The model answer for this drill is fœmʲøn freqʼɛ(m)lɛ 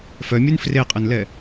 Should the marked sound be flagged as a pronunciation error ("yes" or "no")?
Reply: yes